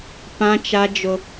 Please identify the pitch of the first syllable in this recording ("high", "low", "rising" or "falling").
high